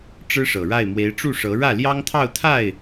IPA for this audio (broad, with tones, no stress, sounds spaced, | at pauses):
ʈ͡ʂ ɻ̩˥ ʂ ɤ˨˩ ɻ a˥˩ ɪ̯ m w e˧˥ ɪ̯ ʈ͡ʂ u˥˩ ʂ ɤ˧˥ ɻ ä˥˩ l j ɑ˥ ŋ t̪ʰ ɑ˥˧ ʊ̯ t̪ʰ a˥˩ ɪ̯